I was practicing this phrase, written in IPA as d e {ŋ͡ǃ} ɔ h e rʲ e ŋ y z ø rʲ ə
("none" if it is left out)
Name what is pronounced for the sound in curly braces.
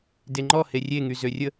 ŋ͡ǃ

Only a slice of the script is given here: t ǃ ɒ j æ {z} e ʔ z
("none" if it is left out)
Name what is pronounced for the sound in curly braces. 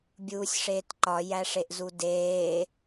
ʂ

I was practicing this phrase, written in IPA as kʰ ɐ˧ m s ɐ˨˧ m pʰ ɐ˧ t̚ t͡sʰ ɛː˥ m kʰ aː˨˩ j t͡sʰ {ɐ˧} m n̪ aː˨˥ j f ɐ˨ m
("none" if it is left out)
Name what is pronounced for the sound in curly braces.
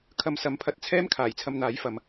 ɐ˧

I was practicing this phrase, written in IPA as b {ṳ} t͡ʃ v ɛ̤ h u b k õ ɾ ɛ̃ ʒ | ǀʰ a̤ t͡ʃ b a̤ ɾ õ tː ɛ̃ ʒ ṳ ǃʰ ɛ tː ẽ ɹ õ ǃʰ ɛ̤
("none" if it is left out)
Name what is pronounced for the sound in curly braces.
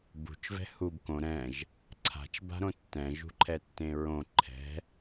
ṳ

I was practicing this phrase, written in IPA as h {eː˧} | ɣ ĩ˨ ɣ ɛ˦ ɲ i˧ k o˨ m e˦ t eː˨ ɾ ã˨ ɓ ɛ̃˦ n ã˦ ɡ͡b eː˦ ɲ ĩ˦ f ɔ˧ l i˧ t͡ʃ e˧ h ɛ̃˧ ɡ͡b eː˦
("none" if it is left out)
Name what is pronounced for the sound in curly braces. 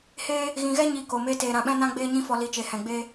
eː˦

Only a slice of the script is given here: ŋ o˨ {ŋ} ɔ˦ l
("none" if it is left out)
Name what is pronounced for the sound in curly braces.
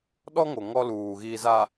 ŋ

